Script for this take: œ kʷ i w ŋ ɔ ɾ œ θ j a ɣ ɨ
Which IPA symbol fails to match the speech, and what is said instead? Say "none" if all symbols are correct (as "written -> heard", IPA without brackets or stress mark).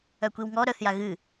none